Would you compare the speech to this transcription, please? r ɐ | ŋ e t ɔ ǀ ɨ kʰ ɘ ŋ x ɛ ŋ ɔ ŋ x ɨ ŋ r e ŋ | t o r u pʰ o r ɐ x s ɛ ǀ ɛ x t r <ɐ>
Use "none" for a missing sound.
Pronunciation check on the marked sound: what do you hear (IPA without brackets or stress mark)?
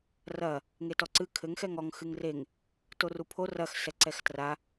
a